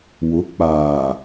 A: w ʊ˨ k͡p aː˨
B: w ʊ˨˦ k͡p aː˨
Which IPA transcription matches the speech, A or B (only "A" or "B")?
B